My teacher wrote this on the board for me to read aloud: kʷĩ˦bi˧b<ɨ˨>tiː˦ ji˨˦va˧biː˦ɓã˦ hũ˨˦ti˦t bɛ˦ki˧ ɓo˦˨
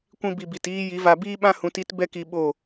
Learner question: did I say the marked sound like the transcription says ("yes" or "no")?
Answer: no